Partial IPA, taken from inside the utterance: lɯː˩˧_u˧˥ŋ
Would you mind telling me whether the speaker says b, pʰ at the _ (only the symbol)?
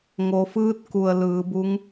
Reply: b